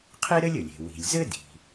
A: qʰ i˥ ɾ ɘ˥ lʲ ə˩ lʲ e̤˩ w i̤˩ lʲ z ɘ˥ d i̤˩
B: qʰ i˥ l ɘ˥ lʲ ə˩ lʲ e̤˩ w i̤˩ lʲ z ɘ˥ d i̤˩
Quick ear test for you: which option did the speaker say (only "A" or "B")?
A